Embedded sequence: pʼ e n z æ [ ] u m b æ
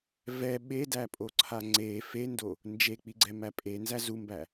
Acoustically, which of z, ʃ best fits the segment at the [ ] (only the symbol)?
z